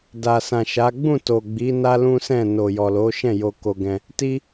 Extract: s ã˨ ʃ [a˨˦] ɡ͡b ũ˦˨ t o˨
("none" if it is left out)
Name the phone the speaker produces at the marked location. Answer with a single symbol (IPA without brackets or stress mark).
a˨˦